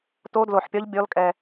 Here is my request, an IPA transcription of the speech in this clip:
t o˦˥ d l o˧˩ ħ pʲ ɒ˦˥ ʎ bʲ ɔ˦˥ l kʼ ɛ˧

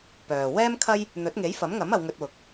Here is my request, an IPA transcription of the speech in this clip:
p œː˨ w ɛː˥ m kʰ ɐ˥ j | n̪ ɵ˨˥ t̚ ŋ e˨˥ j f ɐ˨˥ m ŋ ɐ˨˥ m ɐ˨˧ w ŋ ɵ˧ t̚ w ʊ˨˥ k̚

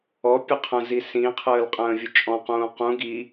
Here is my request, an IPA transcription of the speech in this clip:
ɔ pʲ ə qʰ ə̃ z i s ĩ qʰ əː l qʼ ə̃ː vʲ ʊ t͡ʃʼ ɔ̃ q ũː q ũ ɡ i

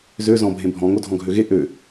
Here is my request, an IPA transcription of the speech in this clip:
z ø z ɔ̃ bʱ ẽ bʱ ɔ̃ ŋ o dʱ ɔ̃ ɡʱ ø ɣ e ʔ ø

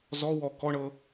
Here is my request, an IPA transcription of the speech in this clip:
z ɔ w ɔ k ɔ ɳ ɤ

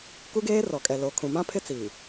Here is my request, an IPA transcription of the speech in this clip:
k u˦ ɡ eː˦ r ɔ˨ kʼ ɛ˨ l o˨ kʰ ũ˨ m ã˦ pʰ ɪ˦ t͡s iː˨

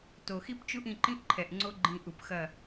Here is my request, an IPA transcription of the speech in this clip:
t o˨ x i˦ p t͡ʃ u˦ ʔ ĩ˧ ǃ ĩ˦ ʔ ǃʰ ɛ˨ ʔ ŋ͡ǀ o˦ ɡ͡ǃ ĩ˧ ʔ u˨ p x ɐ˦˨

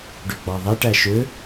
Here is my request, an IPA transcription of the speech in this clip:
ɖ ø ɡ͡b ɑ ðˤ ɛ ʈ æ ʃ ø

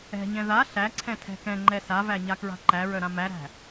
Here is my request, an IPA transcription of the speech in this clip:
ɛ̤ ɲ ɛ̃ ð a ɬ æ ǀʰ ɛ̃ tʰ ɛ̤ k ɛ̃ ŋ͡ǃ ɛ s a v æ ɲ a k ɹ a̤ ǃ æ ɹ œ ɾ ã m æ ɾ æ̤

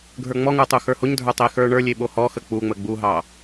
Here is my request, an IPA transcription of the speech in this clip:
ɡʱ ə˞ ŋ͡m ɔ ŋ ə˞ tˤ u x ə˞ h o ɲ dʱ ə˞ tˤ e x ə˞ ɳ ə˞ lʲ e ɓ o h ɔ x ə k͡p u ŋ͡m ə ɡ͡b u ɦ ɑ

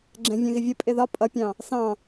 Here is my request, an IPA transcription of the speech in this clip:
ɡ͡ǁ ɛ̃ vʲ ɛ̃ ɣ ɪ vʲ ə pʼ ɪ ð ɒ pʼ ʌ pʲ ɑ̃ | s ɑ̃

